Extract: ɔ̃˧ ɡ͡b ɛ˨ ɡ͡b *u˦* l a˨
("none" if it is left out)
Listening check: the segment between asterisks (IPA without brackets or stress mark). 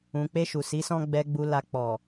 u˨